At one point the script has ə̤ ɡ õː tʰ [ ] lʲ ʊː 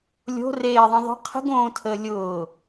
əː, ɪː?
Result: əː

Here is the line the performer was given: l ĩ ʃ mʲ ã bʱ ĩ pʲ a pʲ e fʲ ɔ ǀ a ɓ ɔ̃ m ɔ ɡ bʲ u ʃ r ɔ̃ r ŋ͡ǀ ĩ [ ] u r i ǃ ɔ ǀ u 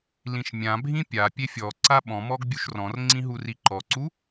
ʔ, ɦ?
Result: ɦ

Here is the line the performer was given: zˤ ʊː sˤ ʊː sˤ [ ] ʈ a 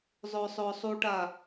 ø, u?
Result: u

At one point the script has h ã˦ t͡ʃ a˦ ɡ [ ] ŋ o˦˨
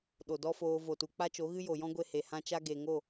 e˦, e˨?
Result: e˨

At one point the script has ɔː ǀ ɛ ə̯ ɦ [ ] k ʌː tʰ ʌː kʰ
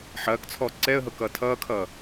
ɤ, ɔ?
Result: ɤ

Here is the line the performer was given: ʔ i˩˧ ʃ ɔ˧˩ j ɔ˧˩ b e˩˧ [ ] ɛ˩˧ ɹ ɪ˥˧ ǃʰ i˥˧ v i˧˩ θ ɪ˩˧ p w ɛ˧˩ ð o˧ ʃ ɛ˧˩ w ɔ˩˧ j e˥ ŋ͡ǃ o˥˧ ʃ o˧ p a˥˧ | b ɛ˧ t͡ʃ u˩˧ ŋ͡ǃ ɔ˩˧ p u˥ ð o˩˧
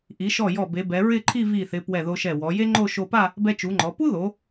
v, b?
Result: b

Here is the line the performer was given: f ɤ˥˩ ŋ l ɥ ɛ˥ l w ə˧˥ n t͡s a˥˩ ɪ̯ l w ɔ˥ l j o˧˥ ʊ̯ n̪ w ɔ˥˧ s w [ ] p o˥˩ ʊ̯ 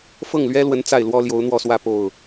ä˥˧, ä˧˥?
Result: ä˥˧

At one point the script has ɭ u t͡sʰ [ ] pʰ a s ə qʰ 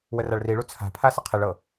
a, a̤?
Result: a̤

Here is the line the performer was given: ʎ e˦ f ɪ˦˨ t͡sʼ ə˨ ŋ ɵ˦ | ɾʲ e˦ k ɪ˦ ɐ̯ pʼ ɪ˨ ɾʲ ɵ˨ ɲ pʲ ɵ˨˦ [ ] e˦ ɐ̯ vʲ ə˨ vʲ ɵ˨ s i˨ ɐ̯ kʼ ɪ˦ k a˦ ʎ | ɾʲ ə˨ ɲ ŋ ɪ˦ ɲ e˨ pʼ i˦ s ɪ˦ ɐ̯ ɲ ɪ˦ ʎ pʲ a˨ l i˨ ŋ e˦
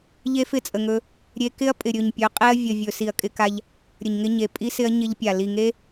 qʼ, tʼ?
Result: qʼ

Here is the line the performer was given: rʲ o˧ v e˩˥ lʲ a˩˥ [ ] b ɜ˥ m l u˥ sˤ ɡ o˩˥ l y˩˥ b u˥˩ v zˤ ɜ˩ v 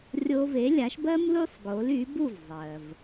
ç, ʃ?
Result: ʃ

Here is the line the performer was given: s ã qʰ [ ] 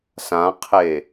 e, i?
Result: e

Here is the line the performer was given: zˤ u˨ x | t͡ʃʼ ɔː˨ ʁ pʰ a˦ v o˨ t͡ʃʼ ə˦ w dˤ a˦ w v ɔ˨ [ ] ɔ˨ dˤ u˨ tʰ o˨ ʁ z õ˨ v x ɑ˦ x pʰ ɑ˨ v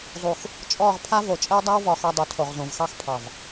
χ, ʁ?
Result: χ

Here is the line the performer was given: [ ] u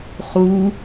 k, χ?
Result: χ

